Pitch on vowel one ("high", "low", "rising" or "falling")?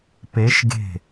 rising